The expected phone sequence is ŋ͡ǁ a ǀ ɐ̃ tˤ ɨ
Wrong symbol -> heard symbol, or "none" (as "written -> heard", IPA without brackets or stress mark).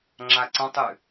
none